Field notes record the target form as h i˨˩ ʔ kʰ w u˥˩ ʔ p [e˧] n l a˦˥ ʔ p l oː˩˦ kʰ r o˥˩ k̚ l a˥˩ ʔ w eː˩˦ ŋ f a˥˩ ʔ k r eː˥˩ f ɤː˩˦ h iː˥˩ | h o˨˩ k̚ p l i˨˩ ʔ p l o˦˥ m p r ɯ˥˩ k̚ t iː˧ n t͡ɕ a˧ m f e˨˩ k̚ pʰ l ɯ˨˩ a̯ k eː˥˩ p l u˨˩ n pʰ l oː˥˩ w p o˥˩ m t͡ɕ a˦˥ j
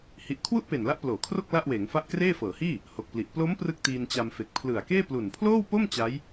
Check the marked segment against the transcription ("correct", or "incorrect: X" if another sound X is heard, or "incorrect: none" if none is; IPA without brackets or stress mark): incorrect: e˨˩